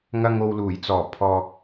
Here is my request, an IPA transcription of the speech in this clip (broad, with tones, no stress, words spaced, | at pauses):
ŋɐ˨ŋ o˨wluː˨˩jt͡sɔː˨˩ pʰɔː˨k̚